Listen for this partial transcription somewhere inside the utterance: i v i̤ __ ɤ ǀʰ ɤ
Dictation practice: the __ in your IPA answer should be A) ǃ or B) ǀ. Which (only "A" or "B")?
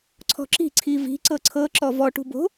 B